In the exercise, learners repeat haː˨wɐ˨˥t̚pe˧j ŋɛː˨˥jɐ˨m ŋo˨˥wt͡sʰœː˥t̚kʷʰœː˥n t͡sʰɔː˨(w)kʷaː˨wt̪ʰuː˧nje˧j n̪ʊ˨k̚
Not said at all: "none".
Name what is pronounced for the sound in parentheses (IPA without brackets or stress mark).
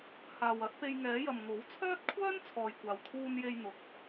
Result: j